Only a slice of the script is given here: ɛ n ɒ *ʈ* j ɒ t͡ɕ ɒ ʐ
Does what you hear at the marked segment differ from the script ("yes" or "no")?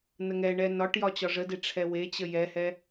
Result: no